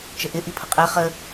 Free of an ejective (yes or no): no